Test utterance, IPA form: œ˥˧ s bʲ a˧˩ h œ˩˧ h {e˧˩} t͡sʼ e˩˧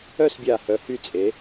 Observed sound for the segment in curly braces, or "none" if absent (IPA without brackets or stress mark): y˧˩